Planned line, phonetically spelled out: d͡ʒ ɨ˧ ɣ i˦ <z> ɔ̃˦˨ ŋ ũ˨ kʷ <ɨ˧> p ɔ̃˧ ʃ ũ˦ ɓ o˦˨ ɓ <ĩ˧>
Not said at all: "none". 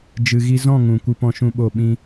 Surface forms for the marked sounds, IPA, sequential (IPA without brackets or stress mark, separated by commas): z, ɨ˧, ĩ˦